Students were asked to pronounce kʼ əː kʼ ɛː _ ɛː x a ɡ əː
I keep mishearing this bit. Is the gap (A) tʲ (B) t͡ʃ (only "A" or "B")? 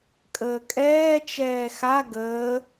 B